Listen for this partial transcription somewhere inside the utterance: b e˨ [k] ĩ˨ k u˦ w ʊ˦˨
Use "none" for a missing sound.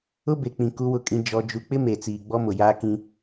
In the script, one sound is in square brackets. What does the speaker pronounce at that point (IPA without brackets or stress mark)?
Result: k͡p